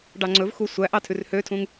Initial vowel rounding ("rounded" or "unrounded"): unrounded